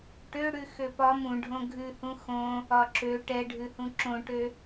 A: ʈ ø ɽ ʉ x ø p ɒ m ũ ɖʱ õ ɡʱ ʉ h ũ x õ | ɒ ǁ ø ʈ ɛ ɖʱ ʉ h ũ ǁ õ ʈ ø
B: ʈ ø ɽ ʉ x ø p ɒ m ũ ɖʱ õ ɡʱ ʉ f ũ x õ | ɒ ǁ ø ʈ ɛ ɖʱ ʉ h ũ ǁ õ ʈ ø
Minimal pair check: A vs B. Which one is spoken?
A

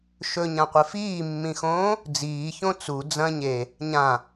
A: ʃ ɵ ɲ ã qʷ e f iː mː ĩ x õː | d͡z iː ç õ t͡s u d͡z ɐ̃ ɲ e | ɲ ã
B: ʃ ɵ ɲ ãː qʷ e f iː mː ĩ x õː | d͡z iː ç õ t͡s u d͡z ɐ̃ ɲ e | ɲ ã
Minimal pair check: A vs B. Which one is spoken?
A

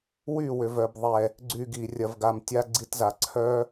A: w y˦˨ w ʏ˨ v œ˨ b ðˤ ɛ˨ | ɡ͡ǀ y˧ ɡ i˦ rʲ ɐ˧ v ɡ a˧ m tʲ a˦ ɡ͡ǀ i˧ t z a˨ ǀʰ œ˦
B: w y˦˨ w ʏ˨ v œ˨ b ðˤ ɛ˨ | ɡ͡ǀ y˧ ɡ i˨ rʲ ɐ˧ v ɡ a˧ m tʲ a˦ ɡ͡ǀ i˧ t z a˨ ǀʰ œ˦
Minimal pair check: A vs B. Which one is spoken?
B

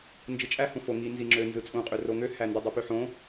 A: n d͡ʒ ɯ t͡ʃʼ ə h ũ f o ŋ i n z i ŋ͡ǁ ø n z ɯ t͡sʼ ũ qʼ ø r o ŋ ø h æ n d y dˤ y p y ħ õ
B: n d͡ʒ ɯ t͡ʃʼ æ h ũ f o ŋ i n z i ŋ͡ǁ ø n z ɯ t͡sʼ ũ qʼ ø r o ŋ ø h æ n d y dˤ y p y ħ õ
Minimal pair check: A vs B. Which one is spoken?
B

